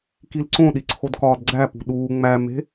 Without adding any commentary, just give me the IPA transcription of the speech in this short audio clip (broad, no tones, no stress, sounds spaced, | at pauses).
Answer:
k i l ǀ õ ɗ i ǀʰ o d k ɒː d ɡ͡ǀ æ p ṳ ɗ uː ŋ͡m æ m e̤